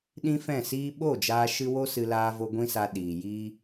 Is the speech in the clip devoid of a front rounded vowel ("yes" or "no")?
yes